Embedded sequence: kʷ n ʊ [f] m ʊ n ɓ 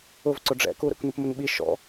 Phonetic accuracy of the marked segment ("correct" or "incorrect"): incorrect